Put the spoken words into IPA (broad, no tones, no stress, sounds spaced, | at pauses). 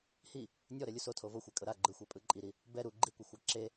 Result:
h i | nʲ ɔ ɾ ɛ lʲ u s o tʰ o v o xʷ ɛ kʼ ɤ ɾ a ɡ͡ǃ ɯ xʷ ɛ pʼ ɯ ǃʼ i ɾ i | b ɛ ɾ u ɡ͡ǃ i kʷ ɤ xʷ a ǁ e